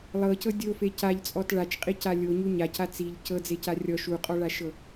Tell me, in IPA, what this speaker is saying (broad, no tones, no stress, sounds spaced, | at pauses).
lˠ ɤ c ɤ dʲ o f e c a ʎ t͡sʼ ɔ t ɭ a t͡ʃ qʼ i c a lʲ o ɲ u ɲ a c a t͡s i ʎ c ɤ d͡z e c a rʲ ɔ ʃ u qʼ ɔ ɭ a ʃ ɤ